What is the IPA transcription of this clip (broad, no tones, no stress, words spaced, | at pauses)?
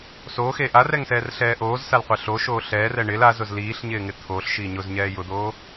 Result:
soxe ʔarɛŋsɛːrɬɛː ʔoːzsalqʷɛ ɬoʃoː ɬɛːrɛ ɳɪl azʊz liːɬɲɪːŋɪ t̪ʰoːɬʃiː ɲʊzɲɛː jʊd̪oː